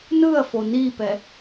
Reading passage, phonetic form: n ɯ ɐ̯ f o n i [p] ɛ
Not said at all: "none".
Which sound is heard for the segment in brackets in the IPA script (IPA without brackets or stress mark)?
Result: p